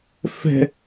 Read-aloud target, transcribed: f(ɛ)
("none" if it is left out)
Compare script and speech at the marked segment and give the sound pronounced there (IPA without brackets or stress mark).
ɛ̤